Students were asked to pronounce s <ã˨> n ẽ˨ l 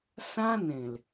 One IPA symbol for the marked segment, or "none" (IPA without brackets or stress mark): ã˦